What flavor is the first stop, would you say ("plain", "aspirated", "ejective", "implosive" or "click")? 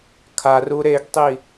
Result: aspirated